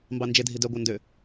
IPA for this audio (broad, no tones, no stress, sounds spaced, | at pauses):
m b ɑ n d͡ʒ e dʱ i d œ ɡʷ ɑ n d ø